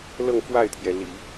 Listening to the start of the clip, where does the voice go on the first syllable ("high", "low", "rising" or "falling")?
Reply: falling